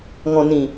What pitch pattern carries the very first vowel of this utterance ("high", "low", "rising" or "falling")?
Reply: low